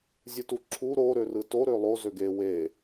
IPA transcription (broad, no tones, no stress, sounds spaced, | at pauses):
zʲ ɯ t u ǁʰ u ɾ o ɾ ø r ɯ t o ɾ ø lˠ o z ø ɡ e w e